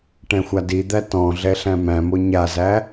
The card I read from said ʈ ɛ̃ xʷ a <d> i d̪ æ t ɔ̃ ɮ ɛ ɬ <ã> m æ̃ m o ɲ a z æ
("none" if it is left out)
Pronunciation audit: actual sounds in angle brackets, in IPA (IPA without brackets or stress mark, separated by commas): d, æ̃